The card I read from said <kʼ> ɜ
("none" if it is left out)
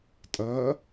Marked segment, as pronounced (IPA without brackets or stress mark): tʼ